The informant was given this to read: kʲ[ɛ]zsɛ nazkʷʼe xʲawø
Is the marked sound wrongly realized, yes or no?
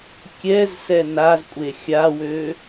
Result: no